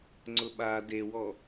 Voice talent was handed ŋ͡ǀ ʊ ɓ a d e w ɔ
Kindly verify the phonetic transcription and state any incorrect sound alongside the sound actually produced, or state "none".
none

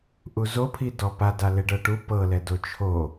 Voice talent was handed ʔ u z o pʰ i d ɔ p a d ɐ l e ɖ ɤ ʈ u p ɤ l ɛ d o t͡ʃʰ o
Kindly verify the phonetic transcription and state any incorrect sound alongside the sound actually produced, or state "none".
ɐ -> a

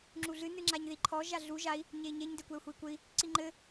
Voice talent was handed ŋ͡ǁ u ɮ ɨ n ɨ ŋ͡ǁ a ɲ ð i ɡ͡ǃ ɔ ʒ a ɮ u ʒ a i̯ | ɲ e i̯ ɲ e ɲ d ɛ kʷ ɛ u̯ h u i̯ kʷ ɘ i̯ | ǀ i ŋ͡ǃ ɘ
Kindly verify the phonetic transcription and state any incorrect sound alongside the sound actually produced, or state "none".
ɡ͡ǃ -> ǃʰ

